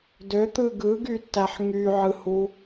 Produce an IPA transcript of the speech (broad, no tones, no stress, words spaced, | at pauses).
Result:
døt̪ɯ ɡɯɡytːæħ ŋyʕɯhu